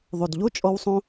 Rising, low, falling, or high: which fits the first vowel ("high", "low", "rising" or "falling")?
low